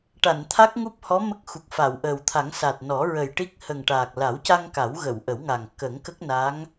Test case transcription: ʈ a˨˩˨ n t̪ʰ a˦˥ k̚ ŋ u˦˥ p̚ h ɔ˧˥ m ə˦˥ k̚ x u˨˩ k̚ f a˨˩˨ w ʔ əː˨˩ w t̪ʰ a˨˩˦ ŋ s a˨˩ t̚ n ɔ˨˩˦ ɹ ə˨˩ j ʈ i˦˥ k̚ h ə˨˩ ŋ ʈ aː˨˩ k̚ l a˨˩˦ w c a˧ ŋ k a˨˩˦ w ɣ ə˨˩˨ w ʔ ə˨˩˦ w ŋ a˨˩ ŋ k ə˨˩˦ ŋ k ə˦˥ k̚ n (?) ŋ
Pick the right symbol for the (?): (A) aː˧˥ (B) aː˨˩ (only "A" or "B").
A